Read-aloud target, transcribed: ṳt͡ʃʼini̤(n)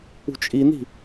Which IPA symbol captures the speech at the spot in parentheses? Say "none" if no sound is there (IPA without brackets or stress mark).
none